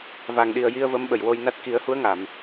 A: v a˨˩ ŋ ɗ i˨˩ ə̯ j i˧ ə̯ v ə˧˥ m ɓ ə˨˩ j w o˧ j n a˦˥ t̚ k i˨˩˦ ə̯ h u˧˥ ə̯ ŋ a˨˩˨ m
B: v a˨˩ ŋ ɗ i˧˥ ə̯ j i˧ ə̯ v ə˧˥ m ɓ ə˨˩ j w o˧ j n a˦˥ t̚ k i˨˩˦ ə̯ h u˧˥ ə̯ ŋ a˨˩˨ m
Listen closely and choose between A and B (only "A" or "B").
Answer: A